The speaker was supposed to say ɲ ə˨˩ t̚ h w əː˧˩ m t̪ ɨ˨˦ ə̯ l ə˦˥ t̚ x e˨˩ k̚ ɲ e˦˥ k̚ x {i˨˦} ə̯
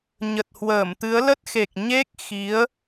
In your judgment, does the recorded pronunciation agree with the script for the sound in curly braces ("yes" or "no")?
yes